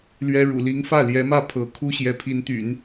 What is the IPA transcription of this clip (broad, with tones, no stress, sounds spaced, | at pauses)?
l ɥ ɛ˥ ɻ ṵ˨˩ l i˧˥ ŋ f ä˥˩ l j ɛ˧˥ m ä˥˩ pʰ ɤ˧˥ kʰ u˥ ɕ j ɛ˧˥ pʰ i˧˥ n t̪ y̰˨˩˦ n